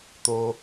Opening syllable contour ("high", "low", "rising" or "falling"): high